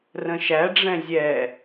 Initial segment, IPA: r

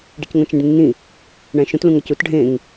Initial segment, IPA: ɖ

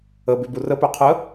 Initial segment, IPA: ə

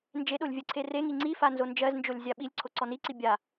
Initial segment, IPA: n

